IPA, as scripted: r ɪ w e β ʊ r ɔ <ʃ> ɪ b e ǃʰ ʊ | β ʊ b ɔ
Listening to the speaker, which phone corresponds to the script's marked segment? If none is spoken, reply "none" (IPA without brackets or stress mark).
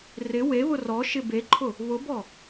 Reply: ʃ